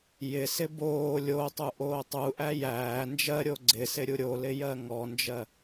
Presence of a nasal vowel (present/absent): absent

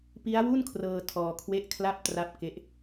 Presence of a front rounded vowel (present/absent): absent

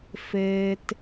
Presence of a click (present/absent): absent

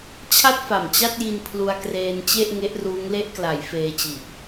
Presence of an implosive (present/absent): absent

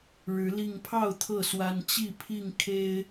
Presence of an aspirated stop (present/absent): present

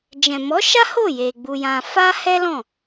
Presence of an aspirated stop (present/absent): absent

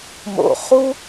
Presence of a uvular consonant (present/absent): present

